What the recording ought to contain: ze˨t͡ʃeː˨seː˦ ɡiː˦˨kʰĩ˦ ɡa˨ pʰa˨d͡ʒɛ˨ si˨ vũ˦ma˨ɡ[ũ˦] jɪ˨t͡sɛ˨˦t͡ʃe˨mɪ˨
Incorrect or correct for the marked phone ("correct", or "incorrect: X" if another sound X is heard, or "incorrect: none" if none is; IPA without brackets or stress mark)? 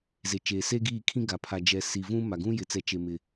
correct